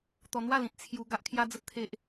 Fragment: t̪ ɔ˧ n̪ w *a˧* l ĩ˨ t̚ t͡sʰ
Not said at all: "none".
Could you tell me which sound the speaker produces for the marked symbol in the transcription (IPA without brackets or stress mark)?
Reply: a˥˧